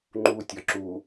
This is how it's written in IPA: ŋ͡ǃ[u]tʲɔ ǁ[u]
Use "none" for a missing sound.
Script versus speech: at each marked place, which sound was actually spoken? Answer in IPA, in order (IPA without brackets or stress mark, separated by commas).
u, u